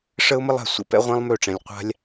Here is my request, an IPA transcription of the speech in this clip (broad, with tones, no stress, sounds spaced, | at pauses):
ʂ ə˦ ʊ̯ m ə˦ lˠ a̤˧ sʷ ə̰˧ p ɛ̰˦ ʁʷ ɛ̃˦ lˠ m ø˦˨ ʈ͡ʂ ɛ̃˧ lʲ qʷ a̤˦ lʲ